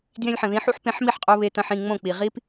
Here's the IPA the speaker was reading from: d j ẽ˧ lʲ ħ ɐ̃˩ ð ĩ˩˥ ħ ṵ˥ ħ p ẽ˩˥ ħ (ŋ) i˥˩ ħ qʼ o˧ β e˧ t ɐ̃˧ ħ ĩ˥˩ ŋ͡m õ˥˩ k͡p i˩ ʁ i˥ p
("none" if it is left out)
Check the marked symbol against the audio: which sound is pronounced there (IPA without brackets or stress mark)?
m